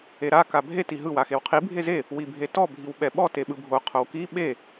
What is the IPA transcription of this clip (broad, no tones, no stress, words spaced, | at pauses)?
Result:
eɾa kabʱe tiɦɯ waxewqʰi bʱeze | wibʱetɔ bʱiwɓɛɓɔ teɓɯbʱo qʰowki ɓe